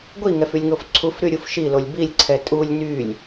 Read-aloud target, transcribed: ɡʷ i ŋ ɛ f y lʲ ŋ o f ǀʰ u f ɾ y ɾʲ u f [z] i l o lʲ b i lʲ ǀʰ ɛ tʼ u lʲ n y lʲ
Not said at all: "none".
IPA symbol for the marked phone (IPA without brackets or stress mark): ʃ